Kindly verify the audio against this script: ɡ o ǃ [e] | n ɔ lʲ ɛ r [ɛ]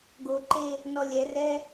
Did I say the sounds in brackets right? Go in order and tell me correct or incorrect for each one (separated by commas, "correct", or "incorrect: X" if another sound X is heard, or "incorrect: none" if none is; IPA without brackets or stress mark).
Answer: correct, correct